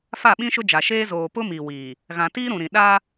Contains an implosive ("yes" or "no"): yes